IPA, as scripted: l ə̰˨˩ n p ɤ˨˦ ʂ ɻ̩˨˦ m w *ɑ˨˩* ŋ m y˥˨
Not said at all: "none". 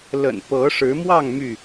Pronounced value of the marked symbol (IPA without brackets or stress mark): ɑ˥˨